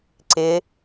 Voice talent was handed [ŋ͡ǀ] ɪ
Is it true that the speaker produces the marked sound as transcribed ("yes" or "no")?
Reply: no